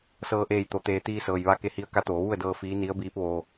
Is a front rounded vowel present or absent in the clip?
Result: absent